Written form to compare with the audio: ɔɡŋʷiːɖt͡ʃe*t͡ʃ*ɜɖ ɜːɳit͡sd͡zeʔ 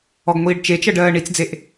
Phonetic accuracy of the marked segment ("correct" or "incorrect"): correct